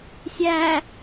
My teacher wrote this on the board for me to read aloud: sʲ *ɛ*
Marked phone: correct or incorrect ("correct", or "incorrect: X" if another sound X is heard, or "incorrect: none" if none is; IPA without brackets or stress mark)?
incorrect: æ